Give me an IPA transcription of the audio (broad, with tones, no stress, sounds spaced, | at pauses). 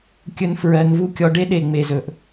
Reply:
kʲ ɵ˦ n f ɹ ɜ˧ n v u˦ kʲ ɔ˧ ɖ e˦ ɗ e˨ ŋ͡m e˨ z ɵ˨ ʔ